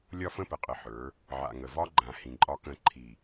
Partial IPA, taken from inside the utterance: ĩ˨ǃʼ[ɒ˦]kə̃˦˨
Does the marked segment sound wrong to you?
no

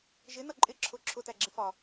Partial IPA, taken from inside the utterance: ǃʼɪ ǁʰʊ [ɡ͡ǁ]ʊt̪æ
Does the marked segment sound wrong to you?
yes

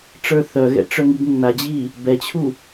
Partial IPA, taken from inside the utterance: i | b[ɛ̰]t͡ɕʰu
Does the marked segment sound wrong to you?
yes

